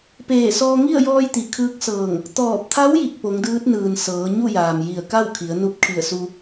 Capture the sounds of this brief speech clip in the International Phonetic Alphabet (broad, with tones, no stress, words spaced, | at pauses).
peː˧˩sɔː˧ŋi˥˨ə̯ jɔː˧jt̪i˩ kʰɯː˧˥k̚sɤː˧˩ŋ | t̪ɔː˧˩p̚t̪ʰa˧˥w ji˧˩k̚po˩˧ŋdɯː˧˥t̚nɯː˩n sɤː˩˧ɲu˥˨jaː˩m ji˧˩ə̯ka˥˨wkʰi˩˧ə̯ nu˧p̚ kʰi˧˩ə̯su˧